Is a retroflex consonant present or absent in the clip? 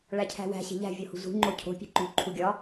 present